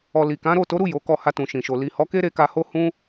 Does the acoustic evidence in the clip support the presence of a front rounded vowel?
no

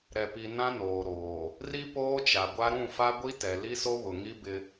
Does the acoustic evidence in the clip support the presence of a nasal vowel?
yes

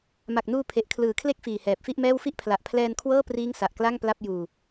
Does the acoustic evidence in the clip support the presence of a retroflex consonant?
no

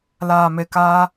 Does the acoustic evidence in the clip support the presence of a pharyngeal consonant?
no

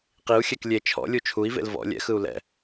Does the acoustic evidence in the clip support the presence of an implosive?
no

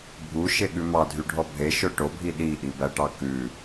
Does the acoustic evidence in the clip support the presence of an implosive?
yes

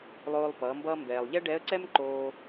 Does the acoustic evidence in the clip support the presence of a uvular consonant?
no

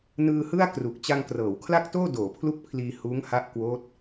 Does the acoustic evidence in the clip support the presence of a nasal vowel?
no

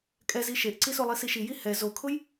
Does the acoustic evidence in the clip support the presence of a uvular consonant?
no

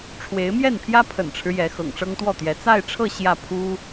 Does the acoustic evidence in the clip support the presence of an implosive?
no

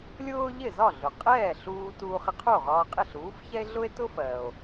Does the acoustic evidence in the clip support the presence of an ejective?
yes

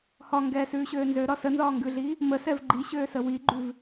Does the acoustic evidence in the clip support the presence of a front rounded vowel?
yes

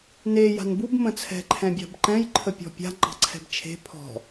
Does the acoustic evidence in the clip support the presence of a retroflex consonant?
no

